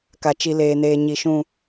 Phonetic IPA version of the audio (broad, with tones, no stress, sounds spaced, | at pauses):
k a˨ t͡ʃ i˨ l eː˨ n eː˨ ɲ i˨ ʃ ũ˨